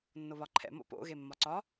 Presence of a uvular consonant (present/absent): absent